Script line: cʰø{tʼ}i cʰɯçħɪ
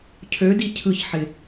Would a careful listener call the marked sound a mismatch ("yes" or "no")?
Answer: yes